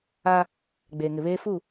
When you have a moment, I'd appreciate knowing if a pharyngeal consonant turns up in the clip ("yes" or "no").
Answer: no